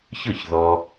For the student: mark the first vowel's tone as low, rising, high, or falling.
falling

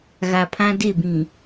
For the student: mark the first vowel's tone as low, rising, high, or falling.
low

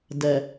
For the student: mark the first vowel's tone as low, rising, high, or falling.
low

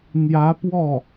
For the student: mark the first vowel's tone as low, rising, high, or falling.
rising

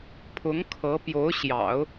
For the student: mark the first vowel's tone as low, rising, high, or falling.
rising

